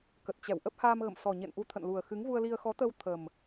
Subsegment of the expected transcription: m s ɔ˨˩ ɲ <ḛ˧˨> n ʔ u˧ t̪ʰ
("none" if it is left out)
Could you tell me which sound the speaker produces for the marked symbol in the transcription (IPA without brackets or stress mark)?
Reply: ḛ˧˨